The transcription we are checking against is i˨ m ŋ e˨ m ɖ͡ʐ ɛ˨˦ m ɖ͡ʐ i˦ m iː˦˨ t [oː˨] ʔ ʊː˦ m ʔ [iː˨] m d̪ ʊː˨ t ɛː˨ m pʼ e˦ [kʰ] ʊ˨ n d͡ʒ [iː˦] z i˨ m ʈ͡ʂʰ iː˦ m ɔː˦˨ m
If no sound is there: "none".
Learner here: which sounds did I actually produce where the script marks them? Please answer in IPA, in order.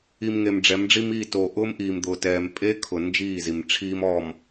oː˨, iː˨, kʰ, iː˦˨

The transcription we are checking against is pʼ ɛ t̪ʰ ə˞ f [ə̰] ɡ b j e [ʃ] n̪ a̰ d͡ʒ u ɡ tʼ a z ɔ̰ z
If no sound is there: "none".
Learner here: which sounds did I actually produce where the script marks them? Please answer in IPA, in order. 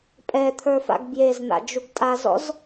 a̰, z

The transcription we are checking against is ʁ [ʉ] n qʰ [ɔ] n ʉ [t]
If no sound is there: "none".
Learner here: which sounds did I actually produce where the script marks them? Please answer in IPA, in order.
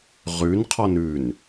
ʉ, ɔ, n

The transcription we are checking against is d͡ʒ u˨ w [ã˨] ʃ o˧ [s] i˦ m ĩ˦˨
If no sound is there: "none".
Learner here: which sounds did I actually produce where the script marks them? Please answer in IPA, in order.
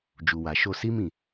a˨, s

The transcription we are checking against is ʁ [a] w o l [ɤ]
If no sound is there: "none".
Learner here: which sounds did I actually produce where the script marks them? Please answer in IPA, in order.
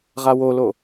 a, o

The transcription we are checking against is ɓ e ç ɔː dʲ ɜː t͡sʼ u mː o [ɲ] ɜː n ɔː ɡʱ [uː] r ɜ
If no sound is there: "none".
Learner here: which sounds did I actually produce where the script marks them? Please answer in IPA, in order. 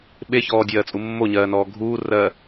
ɲ, uː

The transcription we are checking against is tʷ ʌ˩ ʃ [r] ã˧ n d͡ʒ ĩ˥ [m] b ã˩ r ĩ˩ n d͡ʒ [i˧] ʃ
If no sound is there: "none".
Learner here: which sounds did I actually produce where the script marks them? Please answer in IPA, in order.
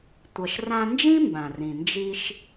r, m, i˧

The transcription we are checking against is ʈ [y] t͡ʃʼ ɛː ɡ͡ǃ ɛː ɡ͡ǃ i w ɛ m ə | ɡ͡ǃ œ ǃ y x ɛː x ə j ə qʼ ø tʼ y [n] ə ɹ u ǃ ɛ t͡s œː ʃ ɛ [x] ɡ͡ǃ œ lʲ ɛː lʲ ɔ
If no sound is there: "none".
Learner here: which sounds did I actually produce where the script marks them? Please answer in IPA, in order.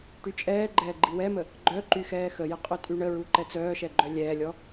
y, ɳ, none

